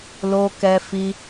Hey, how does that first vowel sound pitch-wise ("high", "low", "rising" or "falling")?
high